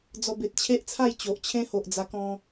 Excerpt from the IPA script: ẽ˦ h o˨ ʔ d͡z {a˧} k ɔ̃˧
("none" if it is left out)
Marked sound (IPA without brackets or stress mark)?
a˧